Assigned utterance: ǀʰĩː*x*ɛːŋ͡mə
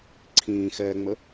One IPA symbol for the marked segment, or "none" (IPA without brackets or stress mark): x